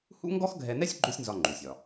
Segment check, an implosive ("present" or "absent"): absent